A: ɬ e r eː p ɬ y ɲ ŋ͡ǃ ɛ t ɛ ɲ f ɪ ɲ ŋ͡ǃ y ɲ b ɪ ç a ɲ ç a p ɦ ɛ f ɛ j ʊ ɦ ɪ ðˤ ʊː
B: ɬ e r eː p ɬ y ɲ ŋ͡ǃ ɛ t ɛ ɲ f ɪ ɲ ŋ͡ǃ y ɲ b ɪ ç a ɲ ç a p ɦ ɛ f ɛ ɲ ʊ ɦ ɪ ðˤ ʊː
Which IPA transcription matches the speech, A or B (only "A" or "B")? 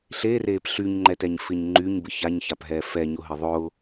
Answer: B